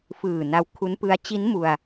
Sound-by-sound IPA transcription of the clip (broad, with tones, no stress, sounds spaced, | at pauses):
f ɯː˨˩ n a˧ w kʰ u˦˥ n p ɯ˦˥ a̯ t͡ɕ i˦˥ n m u˧ a̯